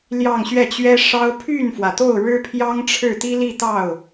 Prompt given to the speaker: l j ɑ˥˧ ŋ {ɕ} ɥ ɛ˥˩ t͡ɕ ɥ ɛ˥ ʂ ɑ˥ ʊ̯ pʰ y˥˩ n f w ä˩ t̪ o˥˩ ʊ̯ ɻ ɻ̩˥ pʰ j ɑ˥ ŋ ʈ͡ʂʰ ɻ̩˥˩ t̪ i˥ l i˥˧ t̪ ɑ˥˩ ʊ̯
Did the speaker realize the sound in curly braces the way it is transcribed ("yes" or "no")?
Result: yes